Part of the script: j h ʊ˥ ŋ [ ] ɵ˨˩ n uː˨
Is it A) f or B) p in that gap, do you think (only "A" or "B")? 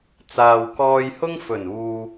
A